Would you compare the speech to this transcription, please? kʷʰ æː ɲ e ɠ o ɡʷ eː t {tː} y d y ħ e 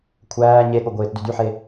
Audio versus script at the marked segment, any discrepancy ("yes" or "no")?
yes